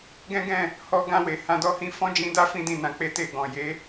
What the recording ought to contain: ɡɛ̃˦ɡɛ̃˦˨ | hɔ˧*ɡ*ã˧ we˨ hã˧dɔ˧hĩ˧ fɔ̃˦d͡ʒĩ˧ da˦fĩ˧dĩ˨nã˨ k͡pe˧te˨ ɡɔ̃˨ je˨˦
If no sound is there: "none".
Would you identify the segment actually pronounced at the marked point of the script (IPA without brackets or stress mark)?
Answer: ɡ